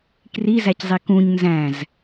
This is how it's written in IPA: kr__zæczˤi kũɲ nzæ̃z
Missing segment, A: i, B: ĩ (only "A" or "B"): A